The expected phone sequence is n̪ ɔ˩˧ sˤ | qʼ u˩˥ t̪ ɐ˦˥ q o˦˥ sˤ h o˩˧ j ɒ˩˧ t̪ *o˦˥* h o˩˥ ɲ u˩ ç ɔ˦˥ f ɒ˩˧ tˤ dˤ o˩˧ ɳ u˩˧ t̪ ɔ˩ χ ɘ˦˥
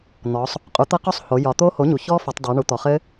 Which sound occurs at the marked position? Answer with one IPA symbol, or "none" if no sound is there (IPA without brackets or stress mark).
o˦˥